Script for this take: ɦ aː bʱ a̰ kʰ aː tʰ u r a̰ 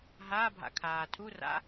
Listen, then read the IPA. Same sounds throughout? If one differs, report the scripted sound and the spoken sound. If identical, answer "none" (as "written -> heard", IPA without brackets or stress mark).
none